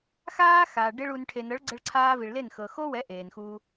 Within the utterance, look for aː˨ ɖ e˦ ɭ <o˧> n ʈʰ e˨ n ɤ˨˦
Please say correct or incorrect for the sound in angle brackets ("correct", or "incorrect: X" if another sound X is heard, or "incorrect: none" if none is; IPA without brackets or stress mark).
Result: incorrect: u˧